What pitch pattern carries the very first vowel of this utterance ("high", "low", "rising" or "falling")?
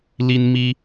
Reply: high